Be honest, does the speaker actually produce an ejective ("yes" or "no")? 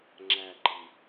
no